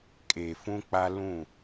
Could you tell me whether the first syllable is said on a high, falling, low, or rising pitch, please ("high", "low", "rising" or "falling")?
low